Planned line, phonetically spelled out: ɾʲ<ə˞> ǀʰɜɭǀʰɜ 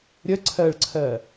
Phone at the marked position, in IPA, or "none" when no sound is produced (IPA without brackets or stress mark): ə